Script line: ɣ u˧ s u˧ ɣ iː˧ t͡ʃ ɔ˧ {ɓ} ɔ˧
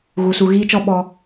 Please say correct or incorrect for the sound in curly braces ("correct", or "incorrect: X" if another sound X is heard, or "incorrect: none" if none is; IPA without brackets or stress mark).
correct